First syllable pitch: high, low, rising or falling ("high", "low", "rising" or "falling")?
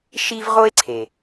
high